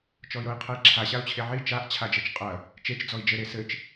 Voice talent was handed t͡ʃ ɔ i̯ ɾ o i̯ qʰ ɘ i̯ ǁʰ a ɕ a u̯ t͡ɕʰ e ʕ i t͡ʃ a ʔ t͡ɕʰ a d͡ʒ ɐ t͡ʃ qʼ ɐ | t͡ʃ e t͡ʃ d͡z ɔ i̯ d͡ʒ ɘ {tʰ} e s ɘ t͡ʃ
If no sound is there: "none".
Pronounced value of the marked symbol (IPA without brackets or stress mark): ɾ